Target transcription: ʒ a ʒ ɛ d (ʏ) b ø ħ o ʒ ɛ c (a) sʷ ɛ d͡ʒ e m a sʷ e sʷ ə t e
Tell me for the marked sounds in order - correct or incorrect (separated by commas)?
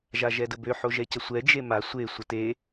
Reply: incorrect, incorrect